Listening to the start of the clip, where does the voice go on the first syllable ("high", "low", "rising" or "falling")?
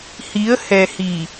rising